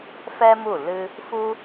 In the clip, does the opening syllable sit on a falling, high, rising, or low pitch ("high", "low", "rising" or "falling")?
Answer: high